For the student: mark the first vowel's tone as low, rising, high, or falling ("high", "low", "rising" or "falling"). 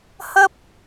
high